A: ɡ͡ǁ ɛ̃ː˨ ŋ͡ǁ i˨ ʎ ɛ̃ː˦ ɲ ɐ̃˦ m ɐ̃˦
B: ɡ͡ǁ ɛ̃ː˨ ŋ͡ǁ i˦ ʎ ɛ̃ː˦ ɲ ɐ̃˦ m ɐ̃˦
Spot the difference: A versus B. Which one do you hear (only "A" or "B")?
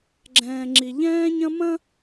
A